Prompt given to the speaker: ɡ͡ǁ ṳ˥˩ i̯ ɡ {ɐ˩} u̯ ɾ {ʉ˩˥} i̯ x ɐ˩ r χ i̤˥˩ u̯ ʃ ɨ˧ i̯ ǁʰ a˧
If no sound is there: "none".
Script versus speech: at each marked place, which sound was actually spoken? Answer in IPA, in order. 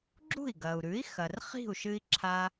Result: ɐ˩, ʉ˩˥

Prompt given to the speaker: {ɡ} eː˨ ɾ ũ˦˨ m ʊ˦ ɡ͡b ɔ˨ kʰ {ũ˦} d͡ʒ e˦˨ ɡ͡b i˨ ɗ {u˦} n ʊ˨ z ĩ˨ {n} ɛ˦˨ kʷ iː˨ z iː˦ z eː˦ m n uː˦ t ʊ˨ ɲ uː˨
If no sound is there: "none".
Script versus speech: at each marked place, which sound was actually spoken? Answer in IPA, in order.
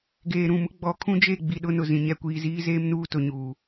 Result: ɡ, ũ˦, ʊ˦, ɲ

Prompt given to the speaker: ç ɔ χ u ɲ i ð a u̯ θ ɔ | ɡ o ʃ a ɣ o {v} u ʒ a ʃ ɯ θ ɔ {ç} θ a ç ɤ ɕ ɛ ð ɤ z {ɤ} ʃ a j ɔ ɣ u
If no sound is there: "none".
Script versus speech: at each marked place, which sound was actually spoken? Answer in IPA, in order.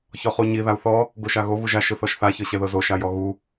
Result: β, ʃ, o

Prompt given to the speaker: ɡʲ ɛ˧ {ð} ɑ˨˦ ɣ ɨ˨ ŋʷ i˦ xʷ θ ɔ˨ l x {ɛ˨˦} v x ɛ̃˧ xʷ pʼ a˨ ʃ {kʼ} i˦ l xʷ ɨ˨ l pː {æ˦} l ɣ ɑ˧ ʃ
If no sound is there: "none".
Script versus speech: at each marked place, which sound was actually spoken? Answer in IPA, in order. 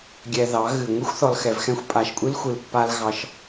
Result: ð, ɛ˨, kʷʼ, a˦

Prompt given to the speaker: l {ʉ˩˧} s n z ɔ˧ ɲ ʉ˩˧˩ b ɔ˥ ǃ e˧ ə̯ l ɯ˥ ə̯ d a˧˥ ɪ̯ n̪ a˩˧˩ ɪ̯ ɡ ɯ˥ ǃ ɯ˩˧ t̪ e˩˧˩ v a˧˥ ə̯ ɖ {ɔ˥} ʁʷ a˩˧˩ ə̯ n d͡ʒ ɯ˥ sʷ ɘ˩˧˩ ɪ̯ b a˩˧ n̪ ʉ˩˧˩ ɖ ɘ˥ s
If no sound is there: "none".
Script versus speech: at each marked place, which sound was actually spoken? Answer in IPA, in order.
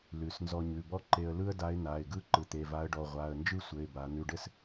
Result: ʉ˩˧, ɔ˩˧˩

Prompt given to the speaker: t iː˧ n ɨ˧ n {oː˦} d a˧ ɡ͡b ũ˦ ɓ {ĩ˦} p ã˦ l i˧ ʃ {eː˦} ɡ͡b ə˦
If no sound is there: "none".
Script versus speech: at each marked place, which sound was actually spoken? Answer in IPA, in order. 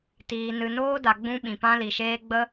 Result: oː˦, ĩ˧, eː˦

